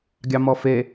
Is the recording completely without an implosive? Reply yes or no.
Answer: yes